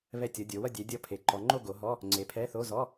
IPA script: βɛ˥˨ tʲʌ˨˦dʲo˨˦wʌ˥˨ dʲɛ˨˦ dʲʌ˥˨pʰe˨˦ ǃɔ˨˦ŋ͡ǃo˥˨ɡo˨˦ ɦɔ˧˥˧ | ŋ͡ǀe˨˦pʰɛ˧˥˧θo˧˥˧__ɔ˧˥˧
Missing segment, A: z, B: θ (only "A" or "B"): A